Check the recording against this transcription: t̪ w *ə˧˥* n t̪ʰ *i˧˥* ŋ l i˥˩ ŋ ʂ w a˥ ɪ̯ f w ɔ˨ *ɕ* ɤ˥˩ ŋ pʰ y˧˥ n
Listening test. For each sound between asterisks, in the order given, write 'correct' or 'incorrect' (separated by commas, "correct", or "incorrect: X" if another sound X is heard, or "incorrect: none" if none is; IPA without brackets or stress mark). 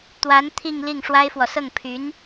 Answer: incorrect: a˧˥, incorrect: i˥˧, incorrect: s